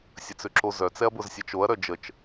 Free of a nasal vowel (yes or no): yes